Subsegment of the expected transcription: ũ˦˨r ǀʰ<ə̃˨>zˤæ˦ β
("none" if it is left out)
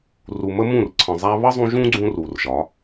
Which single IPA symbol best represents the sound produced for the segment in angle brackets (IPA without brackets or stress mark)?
ə̃˨